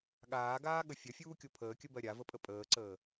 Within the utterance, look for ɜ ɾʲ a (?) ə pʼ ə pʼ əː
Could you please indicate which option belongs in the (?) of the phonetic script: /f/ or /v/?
v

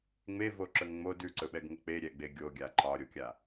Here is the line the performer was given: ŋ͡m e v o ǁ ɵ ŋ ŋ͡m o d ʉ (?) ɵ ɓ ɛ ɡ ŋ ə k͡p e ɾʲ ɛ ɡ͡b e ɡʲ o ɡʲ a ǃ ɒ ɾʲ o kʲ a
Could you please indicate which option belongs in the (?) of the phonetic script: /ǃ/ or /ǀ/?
ǀ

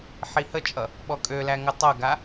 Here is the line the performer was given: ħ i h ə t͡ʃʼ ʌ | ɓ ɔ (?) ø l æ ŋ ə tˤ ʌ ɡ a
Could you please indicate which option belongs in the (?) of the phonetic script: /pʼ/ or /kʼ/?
kʼ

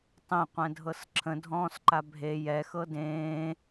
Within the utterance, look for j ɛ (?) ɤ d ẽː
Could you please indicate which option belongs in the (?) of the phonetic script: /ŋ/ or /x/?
x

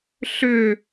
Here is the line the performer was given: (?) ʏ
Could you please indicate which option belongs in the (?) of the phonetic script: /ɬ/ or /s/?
ɬ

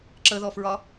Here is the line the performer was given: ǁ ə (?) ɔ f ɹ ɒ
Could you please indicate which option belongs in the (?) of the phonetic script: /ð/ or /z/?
ð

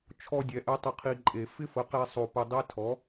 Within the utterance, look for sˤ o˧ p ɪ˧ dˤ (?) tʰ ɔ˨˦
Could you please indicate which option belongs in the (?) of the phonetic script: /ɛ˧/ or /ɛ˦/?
ɛ˦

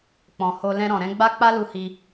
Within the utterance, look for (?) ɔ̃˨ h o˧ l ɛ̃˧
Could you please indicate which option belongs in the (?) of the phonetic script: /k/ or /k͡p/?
k͡p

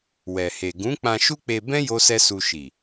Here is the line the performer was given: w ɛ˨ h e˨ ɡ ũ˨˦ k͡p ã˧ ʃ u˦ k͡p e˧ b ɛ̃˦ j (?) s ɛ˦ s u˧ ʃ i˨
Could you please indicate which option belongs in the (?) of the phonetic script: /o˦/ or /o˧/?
o˦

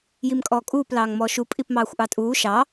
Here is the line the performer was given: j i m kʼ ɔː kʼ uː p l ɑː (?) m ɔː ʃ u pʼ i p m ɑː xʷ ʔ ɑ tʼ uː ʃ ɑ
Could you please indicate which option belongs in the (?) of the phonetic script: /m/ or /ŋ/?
ŋ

